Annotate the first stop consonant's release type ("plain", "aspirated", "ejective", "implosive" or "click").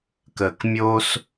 plain